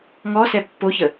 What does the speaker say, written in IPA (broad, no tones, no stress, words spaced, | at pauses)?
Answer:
ŋɔsɛ pːoçə